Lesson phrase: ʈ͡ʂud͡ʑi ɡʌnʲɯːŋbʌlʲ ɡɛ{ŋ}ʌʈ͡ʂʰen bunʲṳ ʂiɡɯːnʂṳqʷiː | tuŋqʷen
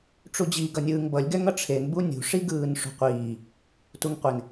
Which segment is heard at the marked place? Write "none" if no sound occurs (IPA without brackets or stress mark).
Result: ŋ